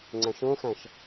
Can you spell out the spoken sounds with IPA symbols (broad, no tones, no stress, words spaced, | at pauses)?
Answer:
ŋ͡ǀæ̃ʃõxæ̃ʃ